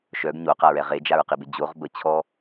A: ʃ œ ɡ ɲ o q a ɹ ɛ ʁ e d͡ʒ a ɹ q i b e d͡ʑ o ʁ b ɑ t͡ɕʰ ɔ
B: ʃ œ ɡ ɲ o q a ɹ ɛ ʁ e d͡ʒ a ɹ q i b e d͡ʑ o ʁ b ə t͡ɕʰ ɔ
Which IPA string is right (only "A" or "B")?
B